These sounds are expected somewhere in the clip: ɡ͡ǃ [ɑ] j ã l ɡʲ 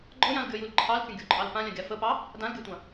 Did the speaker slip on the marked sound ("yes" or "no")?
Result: yes